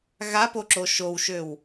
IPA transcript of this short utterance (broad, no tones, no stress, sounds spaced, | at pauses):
ɣ a p o ǁ o ʃ o w ʃ ø w